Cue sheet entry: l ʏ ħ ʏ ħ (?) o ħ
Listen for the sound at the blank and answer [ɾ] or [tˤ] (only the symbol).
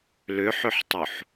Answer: tˤ